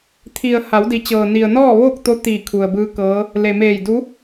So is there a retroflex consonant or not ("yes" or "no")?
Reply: no